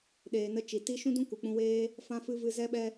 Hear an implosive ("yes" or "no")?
yes